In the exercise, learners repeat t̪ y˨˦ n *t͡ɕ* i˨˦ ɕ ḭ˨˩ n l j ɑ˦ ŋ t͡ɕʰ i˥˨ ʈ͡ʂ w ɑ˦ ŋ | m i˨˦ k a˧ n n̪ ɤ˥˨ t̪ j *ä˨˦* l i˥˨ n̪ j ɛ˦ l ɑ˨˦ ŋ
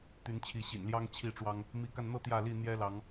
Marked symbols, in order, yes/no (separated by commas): no, no